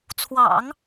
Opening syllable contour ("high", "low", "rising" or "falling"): low